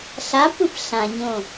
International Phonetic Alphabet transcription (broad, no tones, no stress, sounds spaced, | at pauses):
ɬ a p ɯ p ɬ ã ɲ õ